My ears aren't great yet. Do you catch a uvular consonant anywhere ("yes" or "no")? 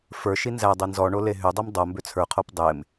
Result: yes